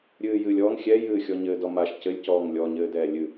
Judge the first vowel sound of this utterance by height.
high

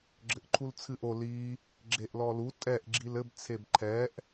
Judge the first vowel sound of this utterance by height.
mid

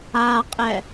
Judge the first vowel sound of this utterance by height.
low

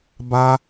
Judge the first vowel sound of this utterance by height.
low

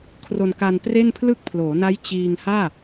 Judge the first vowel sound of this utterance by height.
mid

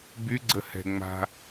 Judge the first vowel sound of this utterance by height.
high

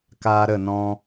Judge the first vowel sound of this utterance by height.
low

